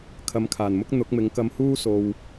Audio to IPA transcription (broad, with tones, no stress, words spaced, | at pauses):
kʰɐ˨˧mkʰaː˨˩nmʊ˥k̚ n̪ʊ˨˥k̚mɪ˨˥ŋkɐ˧mhuː˥ so˨w